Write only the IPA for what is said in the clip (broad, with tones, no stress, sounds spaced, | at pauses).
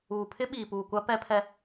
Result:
uː˨ pʰ ɪ˦ ɓ iː˨ p uː˨ kʷ a˦ p ɛ˦ pʰ ɛ˦